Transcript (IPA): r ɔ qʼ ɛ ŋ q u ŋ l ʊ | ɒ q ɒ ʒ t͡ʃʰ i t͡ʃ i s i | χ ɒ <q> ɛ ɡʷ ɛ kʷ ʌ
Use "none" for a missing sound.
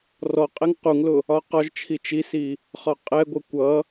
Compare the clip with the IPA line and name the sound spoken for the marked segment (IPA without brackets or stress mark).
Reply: qʼ